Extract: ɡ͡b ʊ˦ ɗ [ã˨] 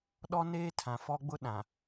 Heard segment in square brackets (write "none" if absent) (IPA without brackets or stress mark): ã˨